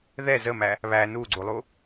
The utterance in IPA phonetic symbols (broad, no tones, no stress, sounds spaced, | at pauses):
ð ɛ z ə m æ | β æ n u ɡ͡ǀ u lˠ u